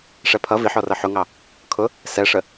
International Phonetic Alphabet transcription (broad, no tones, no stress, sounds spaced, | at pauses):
ʂ ɛ pʰ ʌ v i ħ ɔ r ʌ ħ ʊ ŋ ɑ | kʰ ʊ | s ɛ ʂ ə